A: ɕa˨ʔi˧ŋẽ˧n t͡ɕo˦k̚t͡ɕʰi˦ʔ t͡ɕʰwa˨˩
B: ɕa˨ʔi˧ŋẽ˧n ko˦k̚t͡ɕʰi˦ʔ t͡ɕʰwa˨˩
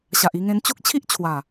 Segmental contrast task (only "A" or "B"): A